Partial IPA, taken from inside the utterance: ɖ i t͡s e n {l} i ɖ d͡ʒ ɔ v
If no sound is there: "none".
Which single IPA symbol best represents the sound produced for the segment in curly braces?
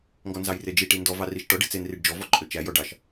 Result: r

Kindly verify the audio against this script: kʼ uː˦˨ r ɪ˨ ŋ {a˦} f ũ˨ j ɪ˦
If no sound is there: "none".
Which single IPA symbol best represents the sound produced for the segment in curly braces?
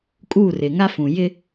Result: a˦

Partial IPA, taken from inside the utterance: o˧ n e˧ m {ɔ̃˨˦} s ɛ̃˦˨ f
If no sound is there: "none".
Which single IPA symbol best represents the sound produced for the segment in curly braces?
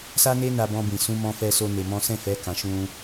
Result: ɔ̃˦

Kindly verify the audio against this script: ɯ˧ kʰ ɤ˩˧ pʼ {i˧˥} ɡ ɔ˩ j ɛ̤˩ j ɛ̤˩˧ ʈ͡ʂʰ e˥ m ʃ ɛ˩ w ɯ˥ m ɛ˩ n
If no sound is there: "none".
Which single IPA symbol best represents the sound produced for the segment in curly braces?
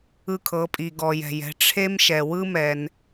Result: i˩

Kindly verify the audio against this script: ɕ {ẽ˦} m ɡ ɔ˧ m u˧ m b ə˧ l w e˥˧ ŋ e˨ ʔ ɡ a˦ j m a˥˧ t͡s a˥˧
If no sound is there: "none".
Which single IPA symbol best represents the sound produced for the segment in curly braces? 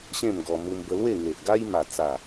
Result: ẽ˥˧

